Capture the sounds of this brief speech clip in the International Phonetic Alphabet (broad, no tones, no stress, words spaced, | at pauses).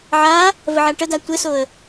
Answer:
ʕa | vəʕaʈəda tʷɘsoə̯